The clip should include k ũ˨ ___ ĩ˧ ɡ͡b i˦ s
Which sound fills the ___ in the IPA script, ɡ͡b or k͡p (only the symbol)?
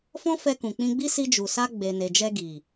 k͡p